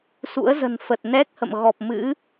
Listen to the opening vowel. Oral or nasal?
oral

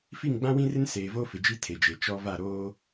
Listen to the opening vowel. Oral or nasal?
oral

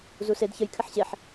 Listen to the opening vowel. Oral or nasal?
oral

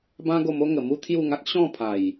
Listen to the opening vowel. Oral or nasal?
nasal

